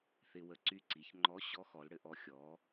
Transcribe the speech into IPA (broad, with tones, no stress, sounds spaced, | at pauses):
θ ɪ˧ w ə˧ ǀ y˧ ǀ i˩˧ ç ŋ͡ǃ ɔ˧˥ ɕ ɔ˧˥ x ɔ˩˧ l ɽ ɘ˧ ʔ ɔ˧ xʲ ɔ˩˧